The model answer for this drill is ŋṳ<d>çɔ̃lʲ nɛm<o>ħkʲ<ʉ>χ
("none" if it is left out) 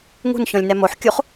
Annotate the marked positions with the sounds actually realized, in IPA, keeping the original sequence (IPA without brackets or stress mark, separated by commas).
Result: n, o, u